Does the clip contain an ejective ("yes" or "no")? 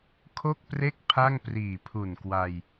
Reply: no